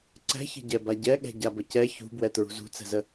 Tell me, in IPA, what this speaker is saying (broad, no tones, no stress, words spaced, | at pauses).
ǀɛ̤çə̤ɟɛ baɟɛ ɠɛ̤ɟabəcɛ çṳbwɛ tɹṳzṳt͡sɛ̤zə